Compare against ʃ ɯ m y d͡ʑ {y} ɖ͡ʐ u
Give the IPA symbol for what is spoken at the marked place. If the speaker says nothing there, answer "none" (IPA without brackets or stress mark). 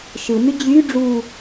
y